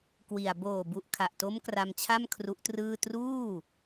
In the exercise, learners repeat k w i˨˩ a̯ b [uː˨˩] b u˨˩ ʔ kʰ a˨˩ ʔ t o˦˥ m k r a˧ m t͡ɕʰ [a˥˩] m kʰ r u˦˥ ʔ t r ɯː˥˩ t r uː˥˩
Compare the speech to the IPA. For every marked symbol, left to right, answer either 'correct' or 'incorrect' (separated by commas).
incorrect, correct